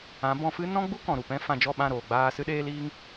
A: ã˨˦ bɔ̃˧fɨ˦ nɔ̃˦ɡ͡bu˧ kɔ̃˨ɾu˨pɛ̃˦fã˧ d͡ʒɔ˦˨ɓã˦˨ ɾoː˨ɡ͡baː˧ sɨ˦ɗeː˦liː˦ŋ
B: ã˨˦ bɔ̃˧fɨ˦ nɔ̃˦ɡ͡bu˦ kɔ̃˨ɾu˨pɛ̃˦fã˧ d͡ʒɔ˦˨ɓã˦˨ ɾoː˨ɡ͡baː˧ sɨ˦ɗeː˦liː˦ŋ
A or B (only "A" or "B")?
B